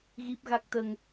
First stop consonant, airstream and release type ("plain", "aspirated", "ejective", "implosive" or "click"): plain